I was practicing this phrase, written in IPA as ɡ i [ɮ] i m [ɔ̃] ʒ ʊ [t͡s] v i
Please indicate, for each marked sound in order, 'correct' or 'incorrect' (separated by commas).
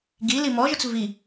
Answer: incorrect, incorrect, correct